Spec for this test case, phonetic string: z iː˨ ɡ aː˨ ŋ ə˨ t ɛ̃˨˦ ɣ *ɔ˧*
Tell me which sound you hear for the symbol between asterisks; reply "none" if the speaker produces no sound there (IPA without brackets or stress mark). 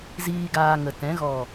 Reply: ɔ˨